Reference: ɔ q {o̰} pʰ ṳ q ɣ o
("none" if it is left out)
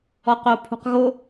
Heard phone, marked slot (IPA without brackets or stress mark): o